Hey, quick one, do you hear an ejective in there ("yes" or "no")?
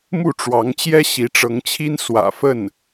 no